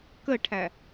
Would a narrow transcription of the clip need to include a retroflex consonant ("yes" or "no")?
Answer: yes